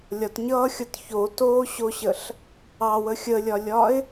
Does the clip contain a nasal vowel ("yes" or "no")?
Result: no